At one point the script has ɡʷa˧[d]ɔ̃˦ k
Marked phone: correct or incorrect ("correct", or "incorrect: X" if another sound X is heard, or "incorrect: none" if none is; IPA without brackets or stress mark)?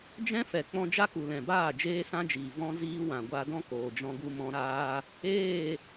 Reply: correct